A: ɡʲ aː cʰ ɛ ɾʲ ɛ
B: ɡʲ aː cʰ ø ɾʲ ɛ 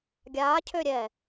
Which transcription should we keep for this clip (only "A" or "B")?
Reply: B